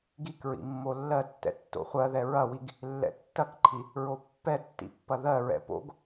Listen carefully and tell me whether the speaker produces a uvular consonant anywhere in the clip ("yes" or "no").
yes